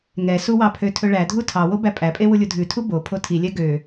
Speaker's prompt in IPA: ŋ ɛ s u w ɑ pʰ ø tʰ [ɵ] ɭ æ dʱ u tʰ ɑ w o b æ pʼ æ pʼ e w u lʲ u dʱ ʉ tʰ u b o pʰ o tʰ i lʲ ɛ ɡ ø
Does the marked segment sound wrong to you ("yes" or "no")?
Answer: no